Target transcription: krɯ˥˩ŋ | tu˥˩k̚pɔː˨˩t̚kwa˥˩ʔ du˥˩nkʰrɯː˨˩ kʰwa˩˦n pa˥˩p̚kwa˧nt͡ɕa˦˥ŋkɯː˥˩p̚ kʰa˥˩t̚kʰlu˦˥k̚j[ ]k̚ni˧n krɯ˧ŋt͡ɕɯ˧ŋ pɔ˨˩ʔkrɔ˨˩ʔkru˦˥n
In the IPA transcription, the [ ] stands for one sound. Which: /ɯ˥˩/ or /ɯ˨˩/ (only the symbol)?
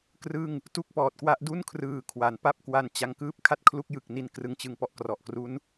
ɯ˨˩